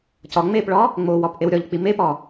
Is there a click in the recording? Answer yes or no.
no